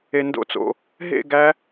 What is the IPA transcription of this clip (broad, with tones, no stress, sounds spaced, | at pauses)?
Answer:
e˧ n d o̰˥˧ t͡s o̰˧ | ɦ ḛ˥˧ ɡ æ˦˥